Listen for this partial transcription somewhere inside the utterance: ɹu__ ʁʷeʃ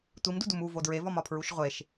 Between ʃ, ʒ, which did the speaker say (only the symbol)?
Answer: ʃ